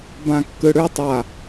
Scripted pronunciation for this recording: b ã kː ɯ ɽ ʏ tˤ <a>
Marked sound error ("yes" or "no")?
no